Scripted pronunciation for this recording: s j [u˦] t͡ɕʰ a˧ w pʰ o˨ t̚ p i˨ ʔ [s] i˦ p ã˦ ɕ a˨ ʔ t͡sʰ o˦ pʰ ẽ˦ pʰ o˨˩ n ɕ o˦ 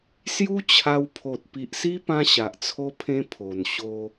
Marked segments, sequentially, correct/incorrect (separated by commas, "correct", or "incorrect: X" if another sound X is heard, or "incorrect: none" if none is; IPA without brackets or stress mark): correct, correct